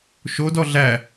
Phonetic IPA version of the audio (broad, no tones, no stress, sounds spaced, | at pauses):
ʃ o d ɔ ɮ æ